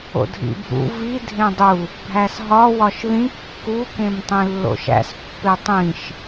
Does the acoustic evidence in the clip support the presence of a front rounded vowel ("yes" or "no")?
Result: no